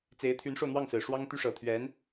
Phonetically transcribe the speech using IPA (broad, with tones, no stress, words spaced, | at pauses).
t͡se˧˥ɪ̯t̪ʰy˧˥nʂo˧ʊ̯n̪wɑ˥˩ŋ sɹ̩˨˩ʂwɑ˥ŋt̪y˥ ʂɤ˨˩ t̪ʰɥɛ˧˥n